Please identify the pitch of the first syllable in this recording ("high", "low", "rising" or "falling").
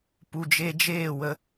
low